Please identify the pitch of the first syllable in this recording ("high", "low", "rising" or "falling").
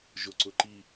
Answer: low